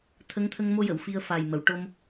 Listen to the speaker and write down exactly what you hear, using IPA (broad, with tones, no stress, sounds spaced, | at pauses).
t̪ʰ ə˧˥ ŋ t̪ʰ ə˧ ŋ m o˧ j ə˨˩˨ w f i˧ ə̯ f aː˨˩ j m ə˨˩˨ w ʈ o˧ m